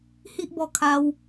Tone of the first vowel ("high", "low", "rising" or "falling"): high